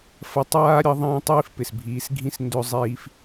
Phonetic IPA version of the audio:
fɐ˧tˤaː˦ ɾʲʌ˦ðˤɐ̃ː˦ tˤiː˦fpɪ˨sbʱiː˨˦sɡʱĩ˦s ndɵ˧ zˤiː˧f

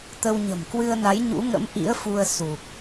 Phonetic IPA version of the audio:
t̪ə˧w ɲə̤˨˩mkwɨ˧ə̯na˨˦j ɲṵ˧˥ŋə̰˧˥m ʔḭ˧˥ə̯fu˧ə̯su˨˩k̚

